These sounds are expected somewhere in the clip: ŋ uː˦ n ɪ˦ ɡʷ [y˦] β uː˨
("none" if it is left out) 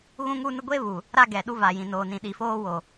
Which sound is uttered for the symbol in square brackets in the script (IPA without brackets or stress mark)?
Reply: e˦